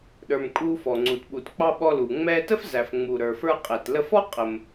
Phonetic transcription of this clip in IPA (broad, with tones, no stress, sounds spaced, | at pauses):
ɗ ə˞˩ m kʼ u˧ f ɔ˩ ŋ͡ǀ u˩ t ɓ u˩ t k͡p ɑ˧ ɓ ɔ˧ l u˩ ŋ͡m ɛ˧ t ə˥ f z æ˩ f ŋ͡m u˩ ɾ ə˞˩ f ə˞˧ qʼ ɛ˩ t l ə˧ f ɔ˥ qʼ ə˩ m